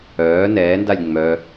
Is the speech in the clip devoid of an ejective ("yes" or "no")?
yes